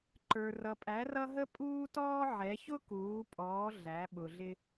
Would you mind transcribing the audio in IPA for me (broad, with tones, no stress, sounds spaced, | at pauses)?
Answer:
ǃ ə˞˩ r ʌ˩ pʼ æ˩˧ r ʌ˧ ɦ ə˥ pʼ uː˥ t ɔː˥ ʕ ɛ˩˧ ç ʊ˥ k uː˩˧ pʼ ɔː˩˧ ɮ æ˩˧ ɓ ʊ˩ ɮ ɪ˧